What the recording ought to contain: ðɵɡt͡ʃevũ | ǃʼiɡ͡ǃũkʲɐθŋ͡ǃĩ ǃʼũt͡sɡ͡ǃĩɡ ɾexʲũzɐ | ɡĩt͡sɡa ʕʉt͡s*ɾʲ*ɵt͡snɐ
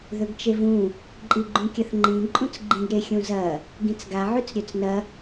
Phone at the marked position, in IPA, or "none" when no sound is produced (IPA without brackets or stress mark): ɾʲ